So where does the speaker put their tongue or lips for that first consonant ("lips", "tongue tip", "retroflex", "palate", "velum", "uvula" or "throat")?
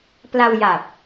lips